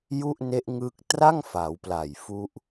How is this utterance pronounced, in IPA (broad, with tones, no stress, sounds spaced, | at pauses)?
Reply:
j u˥˩ ʔ n e˦˥ ʔ ŋ ɯ˦˥ k̚ t r a˥˩ ŋ f a˩˦ w p l a˨˩ j f u˦˥ ʔ